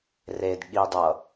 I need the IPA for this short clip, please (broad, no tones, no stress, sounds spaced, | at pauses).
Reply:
r e d ɠ i dˤ ʌ